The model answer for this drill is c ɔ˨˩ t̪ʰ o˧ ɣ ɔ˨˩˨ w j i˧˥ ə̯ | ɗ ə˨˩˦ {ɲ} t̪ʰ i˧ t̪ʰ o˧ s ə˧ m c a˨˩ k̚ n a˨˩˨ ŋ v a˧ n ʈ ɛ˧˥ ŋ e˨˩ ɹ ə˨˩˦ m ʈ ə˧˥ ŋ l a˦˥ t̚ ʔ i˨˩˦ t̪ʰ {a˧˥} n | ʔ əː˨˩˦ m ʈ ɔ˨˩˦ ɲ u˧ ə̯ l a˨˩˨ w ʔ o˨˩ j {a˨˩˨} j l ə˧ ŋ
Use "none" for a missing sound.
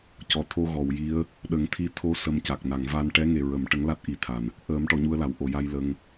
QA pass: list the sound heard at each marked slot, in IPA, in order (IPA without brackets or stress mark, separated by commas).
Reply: ŋ, a˨˩, a˧